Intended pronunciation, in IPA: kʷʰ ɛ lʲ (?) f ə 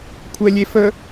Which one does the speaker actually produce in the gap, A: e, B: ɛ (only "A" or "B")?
A